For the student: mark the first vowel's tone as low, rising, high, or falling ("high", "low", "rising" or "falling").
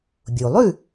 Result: low